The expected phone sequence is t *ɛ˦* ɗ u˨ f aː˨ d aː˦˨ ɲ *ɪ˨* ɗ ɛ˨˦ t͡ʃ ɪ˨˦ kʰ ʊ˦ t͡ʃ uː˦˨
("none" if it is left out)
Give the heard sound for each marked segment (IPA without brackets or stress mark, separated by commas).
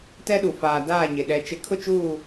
ɛ˦, ɪ˨